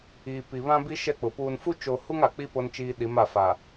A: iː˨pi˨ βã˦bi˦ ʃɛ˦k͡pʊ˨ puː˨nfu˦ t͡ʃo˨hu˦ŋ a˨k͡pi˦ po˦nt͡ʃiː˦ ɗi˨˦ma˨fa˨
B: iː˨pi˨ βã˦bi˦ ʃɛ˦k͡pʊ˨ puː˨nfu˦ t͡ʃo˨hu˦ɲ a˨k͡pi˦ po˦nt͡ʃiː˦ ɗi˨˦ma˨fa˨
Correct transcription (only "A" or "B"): A